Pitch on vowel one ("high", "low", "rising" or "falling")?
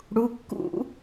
rising